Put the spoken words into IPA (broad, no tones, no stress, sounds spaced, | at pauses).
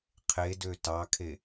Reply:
qʰ e d ø t ɑ kʰ e